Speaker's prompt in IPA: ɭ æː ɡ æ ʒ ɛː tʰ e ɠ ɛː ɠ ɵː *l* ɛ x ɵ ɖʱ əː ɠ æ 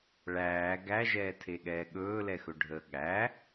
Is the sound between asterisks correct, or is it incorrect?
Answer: correct